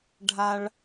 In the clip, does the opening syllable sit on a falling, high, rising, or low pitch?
high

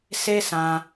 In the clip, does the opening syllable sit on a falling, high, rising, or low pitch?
high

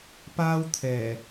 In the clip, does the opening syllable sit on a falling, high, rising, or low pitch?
high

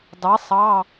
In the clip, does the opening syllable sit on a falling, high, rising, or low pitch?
rising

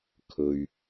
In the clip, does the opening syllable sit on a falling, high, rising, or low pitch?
low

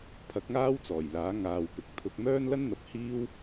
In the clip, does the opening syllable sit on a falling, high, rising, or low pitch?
rising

